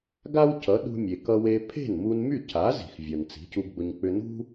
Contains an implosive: yes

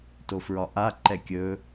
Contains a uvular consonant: no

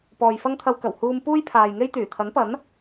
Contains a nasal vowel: no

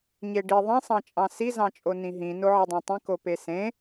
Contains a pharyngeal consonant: yes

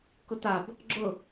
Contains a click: yes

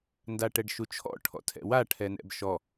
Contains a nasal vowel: no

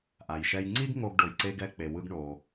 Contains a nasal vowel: no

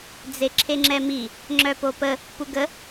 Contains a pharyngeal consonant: no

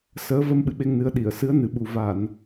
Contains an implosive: yes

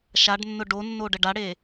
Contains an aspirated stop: no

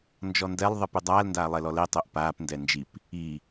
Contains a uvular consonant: no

